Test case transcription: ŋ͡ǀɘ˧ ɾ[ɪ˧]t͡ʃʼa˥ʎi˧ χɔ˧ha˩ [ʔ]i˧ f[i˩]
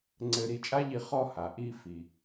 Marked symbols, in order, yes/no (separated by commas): no, yes, yes